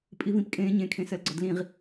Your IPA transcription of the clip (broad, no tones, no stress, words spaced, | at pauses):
pʼivĩpkʼẽːɲẽ kʰẽsɜlɡ͡ǀɔdlĩʁ